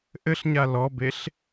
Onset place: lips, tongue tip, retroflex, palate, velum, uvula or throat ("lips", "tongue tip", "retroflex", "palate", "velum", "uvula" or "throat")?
throat